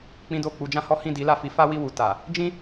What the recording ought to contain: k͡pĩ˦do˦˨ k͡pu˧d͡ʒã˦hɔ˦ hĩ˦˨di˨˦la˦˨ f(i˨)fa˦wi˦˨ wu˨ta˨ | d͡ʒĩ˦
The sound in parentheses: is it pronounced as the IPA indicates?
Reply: no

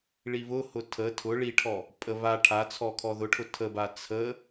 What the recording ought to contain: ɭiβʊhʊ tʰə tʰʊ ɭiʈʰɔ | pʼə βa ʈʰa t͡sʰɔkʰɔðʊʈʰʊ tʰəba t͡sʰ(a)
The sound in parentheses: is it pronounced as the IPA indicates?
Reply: no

